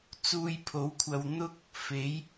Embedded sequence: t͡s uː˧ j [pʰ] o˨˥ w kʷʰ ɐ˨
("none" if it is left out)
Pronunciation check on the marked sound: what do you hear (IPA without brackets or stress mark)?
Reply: pʰ